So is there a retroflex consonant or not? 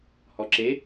no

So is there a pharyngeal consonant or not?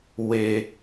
no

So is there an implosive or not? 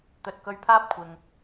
no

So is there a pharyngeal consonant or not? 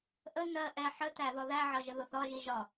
yes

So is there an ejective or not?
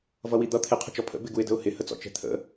no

